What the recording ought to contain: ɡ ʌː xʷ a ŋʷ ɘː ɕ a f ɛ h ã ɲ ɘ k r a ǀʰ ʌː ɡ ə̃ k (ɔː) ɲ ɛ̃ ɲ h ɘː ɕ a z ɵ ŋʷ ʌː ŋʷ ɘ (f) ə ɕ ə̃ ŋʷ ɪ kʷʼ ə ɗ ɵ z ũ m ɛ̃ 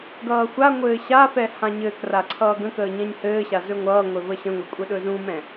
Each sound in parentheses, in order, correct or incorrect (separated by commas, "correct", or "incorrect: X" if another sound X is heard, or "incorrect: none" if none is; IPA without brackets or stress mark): incorrect: əː, incorrect: v